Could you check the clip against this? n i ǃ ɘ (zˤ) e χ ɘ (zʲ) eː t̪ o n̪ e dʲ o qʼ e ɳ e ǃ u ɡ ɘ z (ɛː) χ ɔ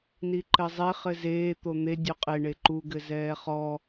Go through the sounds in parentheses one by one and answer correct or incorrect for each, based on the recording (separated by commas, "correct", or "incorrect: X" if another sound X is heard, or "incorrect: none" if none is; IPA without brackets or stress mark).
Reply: correct, incorrect: z, correct